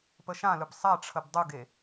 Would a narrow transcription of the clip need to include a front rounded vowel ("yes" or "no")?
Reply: no